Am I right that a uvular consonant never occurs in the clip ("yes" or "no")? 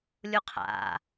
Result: no